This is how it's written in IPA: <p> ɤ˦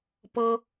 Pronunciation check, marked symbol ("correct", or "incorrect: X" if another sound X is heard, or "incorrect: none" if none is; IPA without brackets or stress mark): correct